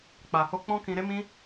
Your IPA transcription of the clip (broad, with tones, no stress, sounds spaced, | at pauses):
k͡p a˨ h o˧ k͡p ɔ̃˦ k ĩ˧ ɾ e˦ m ĩ˦